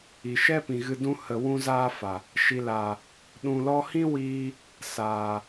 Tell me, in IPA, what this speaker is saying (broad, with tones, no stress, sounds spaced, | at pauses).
i˨ ʃ ɛ˦ p ĩ˨ ɣ ɨ˧ d ũ˦ h ə˨ w ũ˧ z aː˧ f a˨ | ʃ i˨ l aː˨ | ɗ ũ˨ l ɔ˧ h ĩ˦ w iː˧ | s aː˨